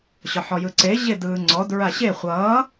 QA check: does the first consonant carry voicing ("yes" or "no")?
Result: no